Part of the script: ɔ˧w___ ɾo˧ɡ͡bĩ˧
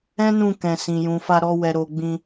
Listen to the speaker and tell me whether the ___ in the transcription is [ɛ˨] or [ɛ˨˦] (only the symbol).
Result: ɛ˨